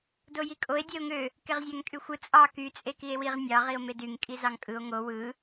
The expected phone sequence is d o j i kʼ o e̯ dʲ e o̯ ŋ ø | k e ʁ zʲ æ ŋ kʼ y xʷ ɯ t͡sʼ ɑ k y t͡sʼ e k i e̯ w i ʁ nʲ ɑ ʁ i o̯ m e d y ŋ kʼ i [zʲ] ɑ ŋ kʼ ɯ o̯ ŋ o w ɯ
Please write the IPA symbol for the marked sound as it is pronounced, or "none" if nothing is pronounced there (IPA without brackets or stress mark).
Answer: z